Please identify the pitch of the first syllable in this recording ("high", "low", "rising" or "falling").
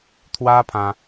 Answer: high